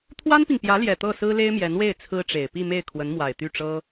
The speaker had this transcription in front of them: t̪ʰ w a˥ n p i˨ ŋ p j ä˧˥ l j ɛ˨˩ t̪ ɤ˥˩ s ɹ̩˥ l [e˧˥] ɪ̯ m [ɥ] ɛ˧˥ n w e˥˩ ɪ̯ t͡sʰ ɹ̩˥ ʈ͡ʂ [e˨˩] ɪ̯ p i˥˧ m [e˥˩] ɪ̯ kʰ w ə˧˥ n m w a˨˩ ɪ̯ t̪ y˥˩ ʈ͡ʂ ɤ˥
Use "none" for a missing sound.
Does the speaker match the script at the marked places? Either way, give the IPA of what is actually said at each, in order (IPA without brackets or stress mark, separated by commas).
e˥, j, e˨˩, e˥˩